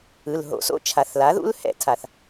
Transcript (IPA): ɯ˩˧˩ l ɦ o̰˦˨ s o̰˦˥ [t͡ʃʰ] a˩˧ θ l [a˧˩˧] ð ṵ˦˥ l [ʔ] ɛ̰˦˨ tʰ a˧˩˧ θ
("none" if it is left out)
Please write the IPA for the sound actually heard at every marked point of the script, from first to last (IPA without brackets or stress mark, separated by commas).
t͡ʃʰ, a˩˥, h